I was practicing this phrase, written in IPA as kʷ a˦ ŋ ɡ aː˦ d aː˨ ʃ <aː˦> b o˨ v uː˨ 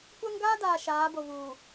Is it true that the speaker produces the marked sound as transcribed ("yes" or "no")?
no